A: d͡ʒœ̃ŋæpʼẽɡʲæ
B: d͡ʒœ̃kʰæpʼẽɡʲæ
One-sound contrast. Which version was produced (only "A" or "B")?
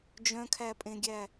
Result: B